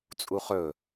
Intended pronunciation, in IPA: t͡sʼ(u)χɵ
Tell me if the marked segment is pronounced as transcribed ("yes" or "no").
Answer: yes